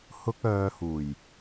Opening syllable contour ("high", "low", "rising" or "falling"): high